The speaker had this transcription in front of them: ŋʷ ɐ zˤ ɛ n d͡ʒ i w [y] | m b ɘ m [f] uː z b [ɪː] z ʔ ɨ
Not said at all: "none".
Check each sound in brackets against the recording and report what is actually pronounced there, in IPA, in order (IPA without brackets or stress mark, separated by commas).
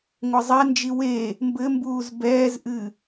e, b, ɛː